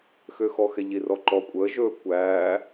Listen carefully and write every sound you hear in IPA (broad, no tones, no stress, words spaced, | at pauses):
xøxɔxɛ ʎirɔǃɔ kʷʼəː ʒɵː kʷæː